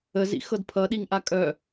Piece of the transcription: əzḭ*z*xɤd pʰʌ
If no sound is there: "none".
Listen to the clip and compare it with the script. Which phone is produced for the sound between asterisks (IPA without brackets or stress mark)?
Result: none